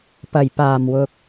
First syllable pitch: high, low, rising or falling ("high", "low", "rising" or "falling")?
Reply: low